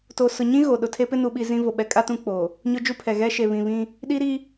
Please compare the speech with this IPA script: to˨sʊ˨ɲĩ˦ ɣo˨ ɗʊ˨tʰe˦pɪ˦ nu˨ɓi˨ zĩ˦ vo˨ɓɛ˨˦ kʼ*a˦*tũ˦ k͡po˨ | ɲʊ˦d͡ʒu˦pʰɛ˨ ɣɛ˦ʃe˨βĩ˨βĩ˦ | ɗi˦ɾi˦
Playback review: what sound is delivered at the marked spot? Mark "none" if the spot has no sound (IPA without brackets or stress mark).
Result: a˦